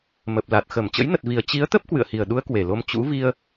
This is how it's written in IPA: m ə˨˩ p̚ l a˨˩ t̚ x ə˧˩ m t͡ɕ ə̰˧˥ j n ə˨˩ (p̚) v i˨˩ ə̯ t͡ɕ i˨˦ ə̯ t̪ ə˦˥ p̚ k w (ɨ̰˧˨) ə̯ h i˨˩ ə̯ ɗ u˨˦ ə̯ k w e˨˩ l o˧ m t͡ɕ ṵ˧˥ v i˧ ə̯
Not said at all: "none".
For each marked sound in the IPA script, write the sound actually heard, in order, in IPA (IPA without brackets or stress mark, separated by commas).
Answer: t̚, ɨ̰˧˨